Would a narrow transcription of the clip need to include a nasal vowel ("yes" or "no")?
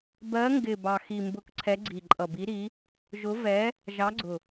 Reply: no